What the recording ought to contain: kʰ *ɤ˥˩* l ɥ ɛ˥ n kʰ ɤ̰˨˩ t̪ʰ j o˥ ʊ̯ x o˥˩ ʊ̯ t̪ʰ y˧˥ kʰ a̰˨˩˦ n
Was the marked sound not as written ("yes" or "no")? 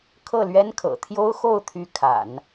no